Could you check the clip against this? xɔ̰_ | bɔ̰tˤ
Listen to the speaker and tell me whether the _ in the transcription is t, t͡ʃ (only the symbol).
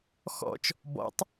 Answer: t͡ʃ